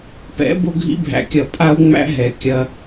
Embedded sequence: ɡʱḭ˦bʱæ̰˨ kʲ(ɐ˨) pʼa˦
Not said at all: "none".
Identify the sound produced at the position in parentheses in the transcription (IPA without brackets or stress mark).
ɐ˨